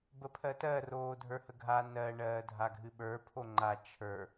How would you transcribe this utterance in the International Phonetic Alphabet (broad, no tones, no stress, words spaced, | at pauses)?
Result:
bəpʰɜtɜ roːdʱə˞həɡʱa nɜ ɳɜːdʱaɡʱɨɓə˞ pʰoŋ͡ǃa t͡ʃʰə˞